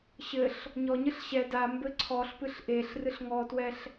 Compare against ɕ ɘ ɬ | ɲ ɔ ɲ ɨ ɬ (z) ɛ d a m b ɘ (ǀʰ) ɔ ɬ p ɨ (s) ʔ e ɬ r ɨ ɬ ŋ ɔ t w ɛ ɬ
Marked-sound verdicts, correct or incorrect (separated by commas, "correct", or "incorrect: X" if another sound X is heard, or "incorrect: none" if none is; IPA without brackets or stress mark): incorrect: ɕ, correct, incorrect: ɬ